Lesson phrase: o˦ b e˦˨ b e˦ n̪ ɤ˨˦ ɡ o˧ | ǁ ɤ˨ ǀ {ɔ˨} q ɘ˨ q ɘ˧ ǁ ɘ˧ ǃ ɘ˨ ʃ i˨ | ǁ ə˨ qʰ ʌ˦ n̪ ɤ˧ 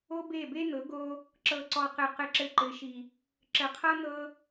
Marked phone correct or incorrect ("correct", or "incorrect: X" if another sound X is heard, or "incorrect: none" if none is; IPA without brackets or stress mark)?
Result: correct